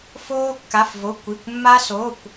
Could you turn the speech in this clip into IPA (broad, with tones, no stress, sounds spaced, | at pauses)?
f oː˥ kː a˧˥˧ f v o˧˥˧ kʷ i˧˥˧ kʷ mː a˥ s o˧˥˧ kʷ